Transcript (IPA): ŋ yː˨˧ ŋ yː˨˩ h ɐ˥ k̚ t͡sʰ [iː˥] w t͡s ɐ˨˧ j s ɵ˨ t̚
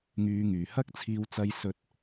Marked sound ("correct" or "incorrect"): incorrect